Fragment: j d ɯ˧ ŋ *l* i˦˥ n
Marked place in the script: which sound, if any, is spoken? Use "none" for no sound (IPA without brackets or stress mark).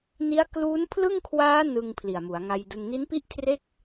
n